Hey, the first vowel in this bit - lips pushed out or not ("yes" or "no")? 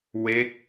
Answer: no